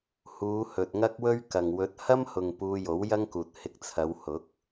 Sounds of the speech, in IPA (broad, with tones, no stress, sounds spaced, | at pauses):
h uː˨˧ h ɵ˨ t̚ ŋ ɐ˥ k̚ w ɵ˥ ɥ k ɐ˨ ŋ w ɵ˨˥ t̚ h ɐ˥ m h ʊ˨ ŋ p uː˧ j o˨˥ w j ɐ˥ ŋ k uː˨ t̚ h ɪ˧ k̚ t͡sʰ ɐ˨˧ w h ʊ˨˥ k̚